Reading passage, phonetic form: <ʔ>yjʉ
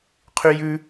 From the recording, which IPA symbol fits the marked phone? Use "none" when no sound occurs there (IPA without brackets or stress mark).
qʰ